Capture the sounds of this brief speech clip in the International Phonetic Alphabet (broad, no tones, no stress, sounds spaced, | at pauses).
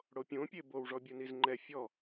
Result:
ɽ o pʲ õ pʲ e b o w ʐ ɔ bʲ u n i z ŋ͡ǃ ɛ fʲ ɔ